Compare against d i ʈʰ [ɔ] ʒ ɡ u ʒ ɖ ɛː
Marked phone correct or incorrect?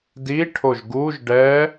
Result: incorrect